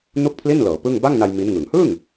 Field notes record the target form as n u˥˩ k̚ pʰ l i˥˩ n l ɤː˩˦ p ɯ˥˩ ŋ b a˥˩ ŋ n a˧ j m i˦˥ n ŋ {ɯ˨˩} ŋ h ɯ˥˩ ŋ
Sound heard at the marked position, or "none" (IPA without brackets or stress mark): ɯ˨˩